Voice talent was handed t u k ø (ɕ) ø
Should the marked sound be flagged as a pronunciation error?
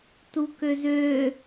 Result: yes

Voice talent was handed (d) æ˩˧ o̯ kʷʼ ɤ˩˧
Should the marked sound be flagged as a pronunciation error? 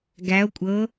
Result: yes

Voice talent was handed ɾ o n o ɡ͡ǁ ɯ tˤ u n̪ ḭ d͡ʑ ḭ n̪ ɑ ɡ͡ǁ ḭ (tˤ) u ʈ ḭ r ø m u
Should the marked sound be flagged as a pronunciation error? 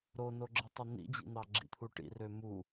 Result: yes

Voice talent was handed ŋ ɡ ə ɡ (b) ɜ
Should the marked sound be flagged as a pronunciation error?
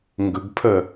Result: yes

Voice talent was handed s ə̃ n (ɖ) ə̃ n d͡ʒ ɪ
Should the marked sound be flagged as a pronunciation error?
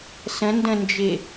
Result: yes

